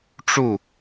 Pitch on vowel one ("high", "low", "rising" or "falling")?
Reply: falling